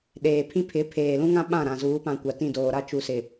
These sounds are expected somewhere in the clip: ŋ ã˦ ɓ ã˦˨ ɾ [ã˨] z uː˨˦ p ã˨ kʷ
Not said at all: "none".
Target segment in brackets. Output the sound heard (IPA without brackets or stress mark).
ã˨